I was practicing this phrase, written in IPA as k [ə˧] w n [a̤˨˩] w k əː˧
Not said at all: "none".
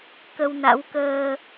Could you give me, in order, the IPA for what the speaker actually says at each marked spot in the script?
ə˧, a̰˧˥

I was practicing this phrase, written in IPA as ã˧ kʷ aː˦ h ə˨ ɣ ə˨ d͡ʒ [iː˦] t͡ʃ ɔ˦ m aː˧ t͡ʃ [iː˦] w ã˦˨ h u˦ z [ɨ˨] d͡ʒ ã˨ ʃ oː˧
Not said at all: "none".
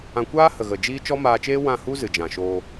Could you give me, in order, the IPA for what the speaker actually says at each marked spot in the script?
iː˦, eː˦, ɨ˨

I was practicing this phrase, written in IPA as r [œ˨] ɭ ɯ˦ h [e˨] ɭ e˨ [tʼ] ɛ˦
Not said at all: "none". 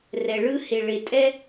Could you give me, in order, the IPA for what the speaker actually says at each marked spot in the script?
ɛ˨, e˨, tʼ

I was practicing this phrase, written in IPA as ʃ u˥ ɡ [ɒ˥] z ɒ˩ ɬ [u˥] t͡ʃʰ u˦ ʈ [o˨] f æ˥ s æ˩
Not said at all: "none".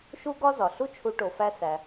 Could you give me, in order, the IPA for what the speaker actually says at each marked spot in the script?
ɒ˥, u˥, o˨

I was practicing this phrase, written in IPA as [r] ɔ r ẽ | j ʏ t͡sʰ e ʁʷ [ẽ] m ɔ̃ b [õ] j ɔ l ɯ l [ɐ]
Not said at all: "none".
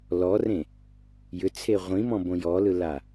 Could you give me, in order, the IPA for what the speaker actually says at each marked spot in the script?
l, ĩ, õ, a

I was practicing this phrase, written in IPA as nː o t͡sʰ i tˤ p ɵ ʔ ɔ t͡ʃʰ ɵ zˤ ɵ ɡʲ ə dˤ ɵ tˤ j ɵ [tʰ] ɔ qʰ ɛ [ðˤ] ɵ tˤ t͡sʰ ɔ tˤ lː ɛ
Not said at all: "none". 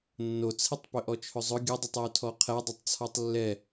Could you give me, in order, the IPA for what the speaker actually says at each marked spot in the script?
tʰ, dˤ

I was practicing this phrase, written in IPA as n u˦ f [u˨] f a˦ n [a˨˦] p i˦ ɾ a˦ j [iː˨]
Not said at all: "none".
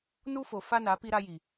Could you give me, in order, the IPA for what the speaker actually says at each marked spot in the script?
o˨, a˨˦, i˨

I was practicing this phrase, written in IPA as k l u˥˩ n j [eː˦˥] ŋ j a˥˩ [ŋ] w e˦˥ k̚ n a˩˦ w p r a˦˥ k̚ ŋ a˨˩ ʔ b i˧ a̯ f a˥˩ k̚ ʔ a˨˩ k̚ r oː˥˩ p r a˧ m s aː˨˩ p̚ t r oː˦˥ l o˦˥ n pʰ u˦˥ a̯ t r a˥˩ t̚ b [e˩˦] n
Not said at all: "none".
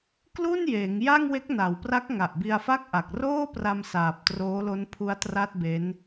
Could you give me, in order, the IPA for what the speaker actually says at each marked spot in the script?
eː˩˦, ŋ, e˦˥

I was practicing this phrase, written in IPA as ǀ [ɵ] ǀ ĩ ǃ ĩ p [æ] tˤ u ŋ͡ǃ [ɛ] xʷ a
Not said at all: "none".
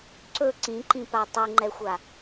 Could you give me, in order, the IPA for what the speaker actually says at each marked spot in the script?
ɵ, a, ɛ

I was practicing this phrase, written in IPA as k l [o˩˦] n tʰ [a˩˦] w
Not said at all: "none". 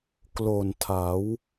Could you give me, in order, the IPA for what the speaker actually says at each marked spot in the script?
o˨˩, a˩˦

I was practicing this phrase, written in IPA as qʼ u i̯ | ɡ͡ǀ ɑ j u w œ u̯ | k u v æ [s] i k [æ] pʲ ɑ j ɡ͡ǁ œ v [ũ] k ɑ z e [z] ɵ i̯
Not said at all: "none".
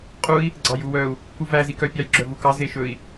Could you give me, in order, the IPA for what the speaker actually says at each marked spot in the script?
z, œ, u, ʃ

